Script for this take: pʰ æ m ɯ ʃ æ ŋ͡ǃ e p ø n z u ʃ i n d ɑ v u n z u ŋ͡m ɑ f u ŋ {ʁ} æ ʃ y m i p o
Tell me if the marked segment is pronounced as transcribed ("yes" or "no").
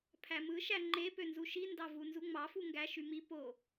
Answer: no